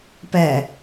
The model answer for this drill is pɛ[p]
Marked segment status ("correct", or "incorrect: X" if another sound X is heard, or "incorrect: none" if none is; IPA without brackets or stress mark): incorrect: none